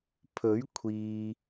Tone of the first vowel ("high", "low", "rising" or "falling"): rising